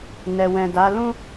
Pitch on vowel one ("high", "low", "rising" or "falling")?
low